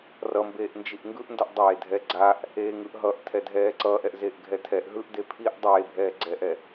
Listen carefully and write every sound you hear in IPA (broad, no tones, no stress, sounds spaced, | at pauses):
r ʌ m b eː ʔ n d͡ʒ i ʔ ŋ ɡ ɯ ʔ n d ʌ ʔ dˤ eː dʱ ɛ ɡ͡ǀ a ʔ | eː ŋ ɯ ʔ ɦ ʌ ʔ tʰ ɛ dʱ ɛː ǀ ʌː ʔ ɛ ʔ z eː ʔ ɡʱ ɛ tʰ ɛ ʔ ɦ ɯ ʔ d e pʰ i ʔ dˤ eː bʱ ɛː ɡ͡ǀ ɛː ʔ ɛ